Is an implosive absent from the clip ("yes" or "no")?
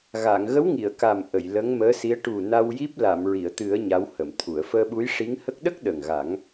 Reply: no